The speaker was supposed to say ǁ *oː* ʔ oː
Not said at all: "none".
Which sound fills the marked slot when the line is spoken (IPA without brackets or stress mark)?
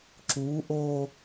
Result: uː